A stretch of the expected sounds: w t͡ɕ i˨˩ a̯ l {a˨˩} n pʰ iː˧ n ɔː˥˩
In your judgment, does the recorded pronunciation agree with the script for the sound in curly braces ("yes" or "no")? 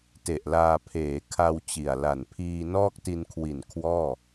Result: yes